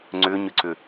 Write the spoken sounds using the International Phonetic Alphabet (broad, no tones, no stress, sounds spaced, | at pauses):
ŋ͡ǀ ʏ ɲ ʏ ǀ ʏ